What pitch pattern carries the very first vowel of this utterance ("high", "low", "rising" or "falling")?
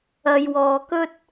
low